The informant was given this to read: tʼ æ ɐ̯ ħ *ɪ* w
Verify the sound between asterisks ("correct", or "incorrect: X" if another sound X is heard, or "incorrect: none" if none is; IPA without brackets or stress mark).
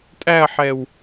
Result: incorrect: ɛ